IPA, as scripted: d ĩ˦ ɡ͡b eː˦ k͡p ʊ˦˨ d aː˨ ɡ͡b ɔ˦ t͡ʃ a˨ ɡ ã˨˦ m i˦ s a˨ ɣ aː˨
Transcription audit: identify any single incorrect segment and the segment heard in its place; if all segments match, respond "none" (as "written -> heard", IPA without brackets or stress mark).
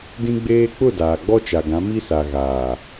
none